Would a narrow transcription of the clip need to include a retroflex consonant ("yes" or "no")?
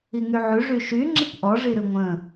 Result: yes